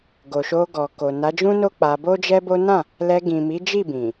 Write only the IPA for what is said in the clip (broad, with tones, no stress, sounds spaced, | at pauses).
ɡ o˨ ʃ o˧ ɡ ɔ˨ k o˨ n a˨˦ d͡ʒ ũ˦ n o˦ k͡p a˧ b o˦ d͡ʒ ɛ˦ b o˦ n ã˦˨ | l ɛ˧ ɡ ĩ˨ m i˨˦ d͡ʒ i˦˨ b ĩ˨